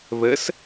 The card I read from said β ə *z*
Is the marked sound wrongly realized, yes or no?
yes